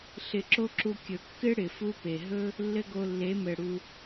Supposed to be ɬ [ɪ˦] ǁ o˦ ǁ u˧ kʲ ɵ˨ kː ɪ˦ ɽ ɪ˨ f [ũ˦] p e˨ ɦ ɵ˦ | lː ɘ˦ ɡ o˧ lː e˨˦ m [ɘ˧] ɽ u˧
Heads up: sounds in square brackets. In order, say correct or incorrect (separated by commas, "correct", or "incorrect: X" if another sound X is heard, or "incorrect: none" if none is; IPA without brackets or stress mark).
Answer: incorrect: ɪ˧, incorrect: u˦, incorrect: ɘ˨